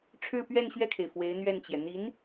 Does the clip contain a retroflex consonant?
yes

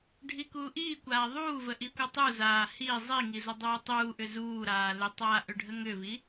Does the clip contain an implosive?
no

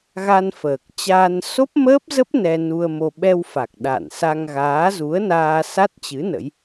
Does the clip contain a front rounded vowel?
no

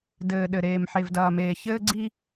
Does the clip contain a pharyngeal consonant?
yes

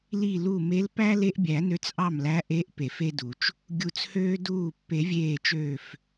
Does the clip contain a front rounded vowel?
yes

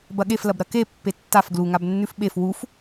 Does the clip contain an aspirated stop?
no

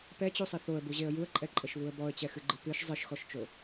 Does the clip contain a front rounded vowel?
no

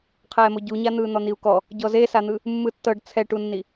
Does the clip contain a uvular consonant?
yes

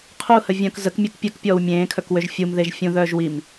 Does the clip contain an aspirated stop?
yes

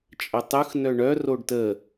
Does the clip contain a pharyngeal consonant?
no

